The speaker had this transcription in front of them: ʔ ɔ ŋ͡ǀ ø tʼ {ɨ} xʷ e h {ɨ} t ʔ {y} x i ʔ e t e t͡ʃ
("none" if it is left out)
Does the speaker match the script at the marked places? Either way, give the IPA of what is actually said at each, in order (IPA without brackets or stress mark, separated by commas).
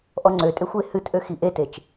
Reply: e, ɨ, ø